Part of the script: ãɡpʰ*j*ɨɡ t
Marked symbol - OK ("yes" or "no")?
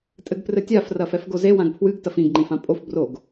no